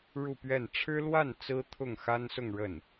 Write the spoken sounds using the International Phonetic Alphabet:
ɻ u˥˧ p ɥ ɛ˥˩ n ʈ͡ʂʰ ɻ̩˥ l w a˥˩ n t͡s ɹ̩˥ t̪ʰ ʊ˥˩ ŋ x a˥ n s ʊ˥˧ ŋ ɻ ə˥˩ n

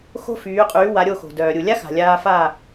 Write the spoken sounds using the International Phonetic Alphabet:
x o̤˥ f yː˩˥ qʼ yː˩˥ w a˩˥ ɾʲ o˧ x o̤˩ d œː˩ ɾʲ u˩ lʲ a˥ x a̤˩ lʲ aː˧ f a˥˩

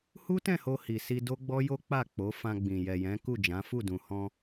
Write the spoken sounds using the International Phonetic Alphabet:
h u˦ t ɛ̃˦˨ h o˧ h i˨ s i˧ d o˦ ɡ͡b ɔ˦ j o˦ k͡p a˦˨ k͡p o˨˦ f ã˧ ɡ͡b ĩ˨ j ɛ˨ j ɛ̃˨˦ k u˦˨ d͡ʒ ã˨˦ f u˦˨ d ũ˨ h ɔ̃˧

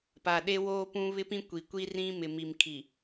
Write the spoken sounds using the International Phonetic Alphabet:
p a˨ ɗ e˦ w oː˦ p ũ˦ β ɪ˦ p ĩ˦ kʷ i˨ kʷ i˦ r ĩ˦ m ɪ˨ m i˨ m kʰ i˨

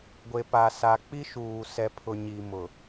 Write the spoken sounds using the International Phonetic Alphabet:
ɡʷ e˨ p a˨ s a˨ k͡p i˦ ʃ uː˨ s ɛ˨ pʰ ʊ˨ ɲ i˨ m ʊ˨

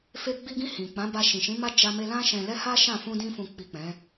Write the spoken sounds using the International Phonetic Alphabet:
f e˧ ɡ͡b i˧ ɡ ĩ˧ h ĩ˨ k͡p ã˨˦ b a˧ ʃ ĩ˨ ʃ ĩ˨˦ m a˦ d͡ʒ a˧ m e˧ l ã˦ ʃ ɛ̃˧ l ɛ˦ h a˦ ʃ ã˦˨ f ũ˧ d ĩ˧ f ũ˨ k͡p i˨ k͡p ɛ̃˨˦

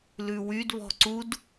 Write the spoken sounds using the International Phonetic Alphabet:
l ʉ w y d β ɔ̤ ǀ u d

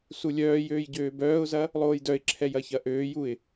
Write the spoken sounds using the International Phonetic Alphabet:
s u lʲ œː j øː j ɟ øː b œː ʊ̯ z ɐ | lˠ oː j d œ ɪ̯ ǁʰ ɛ j ɐ ç ɐ ʔ øː j u ɪ̯

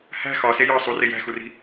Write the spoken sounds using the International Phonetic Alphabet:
h æ̤ x ɒ s e j ɒ sˤ u r e j æ̤ x u r i̤

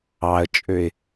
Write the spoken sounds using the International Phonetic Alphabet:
ɑ ə̯ t͡ʃʼ ø ɪ̯

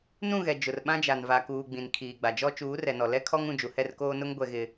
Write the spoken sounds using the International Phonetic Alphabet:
n ũ˦˨ ɣ ɛ˨ d͡ʒ ʊ˨ r ɓ ã˦ d͡ʒ a˨ n v a˨ k uː˨ ɡ͡b ĩ˨ n kʰ iː˨ ɡ͡b a˨ d͡ʒ ɔ˦ t͡ʃ uː˨˦ r ɛ˨ n ɔ˨ l ɛ˦ kʰ ɔ˦ ŋ ũ˦˨ d͡ʒ u˨ h ɛ˦˨ r k oː˦ n ʊ˦ ŋ ɡʷ ɛ˦ ɣ ɪ˦

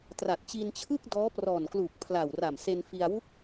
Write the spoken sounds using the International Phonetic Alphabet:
t r a˨˩ t̚ t͡ɕ i˧ n t͡ɕʰ ɯ˥˩ k̚ d ɔː˦˥ p r ɔː˨˩ n k l uː˨˩ k̚ pʰ l a˨˩ w r a˨˩ m s e˧ n f i˧ a̯ w u˦˥ k̚

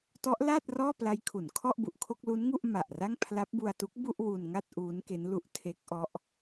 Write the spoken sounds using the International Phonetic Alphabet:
t ɔ˦˥ ʔ l a˥˩ t̚ r ɔː˥˩ p l a˦˥ j kʰ u˩˦ n kʰ ɔ˥˩ ʔ b u˨˩ ʔ kʰ o˥˩ k̚ l u˦˥ n ŋ u˥˩ ʔ m a˨˩ ʔ r a˥˩ ŋ pʰ l a˦˥ p̚ b u˧ a̯ t u˦˥ k̚ b u˥˩ ʔ w u˧ n ŋ a˥˩ t̚ ʔ uː˦˥ n k e˦˥ n l u˦˥ ʔ tʰ e˦˥ k̚ ʔ ɔ˦˥ ʔ

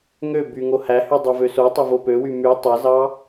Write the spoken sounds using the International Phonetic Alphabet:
ŋ ø b y ŋ o h æ h y dˤ o v ø s o tˤ o v o p ø w y m y tˤ e z ɑ

